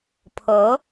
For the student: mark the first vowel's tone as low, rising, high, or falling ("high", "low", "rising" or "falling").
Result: rising